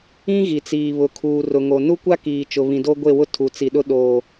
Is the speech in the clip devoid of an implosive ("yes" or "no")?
no